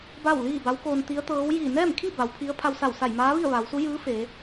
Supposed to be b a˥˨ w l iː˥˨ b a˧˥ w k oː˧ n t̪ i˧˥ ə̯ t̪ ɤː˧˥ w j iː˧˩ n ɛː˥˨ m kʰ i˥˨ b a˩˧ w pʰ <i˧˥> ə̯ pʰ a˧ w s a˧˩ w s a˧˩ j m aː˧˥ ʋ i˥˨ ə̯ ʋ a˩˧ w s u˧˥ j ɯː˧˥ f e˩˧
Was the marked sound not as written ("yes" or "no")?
no